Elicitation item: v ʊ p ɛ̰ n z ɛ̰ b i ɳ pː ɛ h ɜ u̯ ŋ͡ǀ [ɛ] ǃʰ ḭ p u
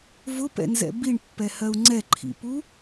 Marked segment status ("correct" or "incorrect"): correct